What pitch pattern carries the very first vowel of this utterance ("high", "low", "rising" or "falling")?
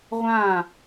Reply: falling